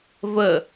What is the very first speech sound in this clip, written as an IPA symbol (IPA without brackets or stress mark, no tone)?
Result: v